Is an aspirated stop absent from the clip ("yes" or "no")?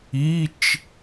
yes